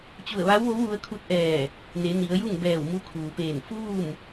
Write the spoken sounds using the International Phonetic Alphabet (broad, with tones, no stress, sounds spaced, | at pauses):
t͡ɕ u˧˩ ə̯ ʋ a˧˥ w ʋ o˧˥ w ʋ u˧ ə̯ kʰ u˧˥ t̚ ʔ ɛː˧˩ | n e˩˧ n i˩˧ ə̯ j u˥˨ ŋ b ɛː˧˩ w m u˧ kʰ uː˩ p eː˧˩ n f uː˥˨ m